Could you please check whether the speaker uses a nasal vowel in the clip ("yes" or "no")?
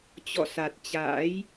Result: no